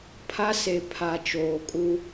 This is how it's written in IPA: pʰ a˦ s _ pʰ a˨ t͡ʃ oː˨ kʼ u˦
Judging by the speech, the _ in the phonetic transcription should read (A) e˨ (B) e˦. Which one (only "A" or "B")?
A